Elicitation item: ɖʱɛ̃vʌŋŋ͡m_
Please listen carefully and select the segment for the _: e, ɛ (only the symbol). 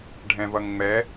ɛ